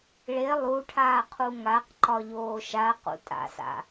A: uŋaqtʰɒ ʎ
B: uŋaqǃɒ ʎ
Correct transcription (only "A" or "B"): B